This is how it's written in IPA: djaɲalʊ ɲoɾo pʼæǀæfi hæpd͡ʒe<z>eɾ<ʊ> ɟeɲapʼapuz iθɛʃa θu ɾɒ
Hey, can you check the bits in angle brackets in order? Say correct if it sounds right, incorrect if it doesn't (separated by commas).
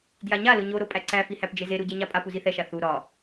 correct, incorrect